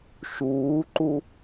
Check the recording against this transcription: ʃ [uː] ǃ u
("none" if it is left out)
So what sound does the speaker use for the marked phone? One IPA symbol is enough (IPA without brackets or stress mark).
uː